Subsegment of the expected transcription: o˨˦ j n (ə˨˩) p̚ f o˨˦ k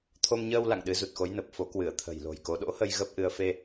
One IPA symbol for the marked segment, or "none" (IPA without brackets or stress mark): ə˨˩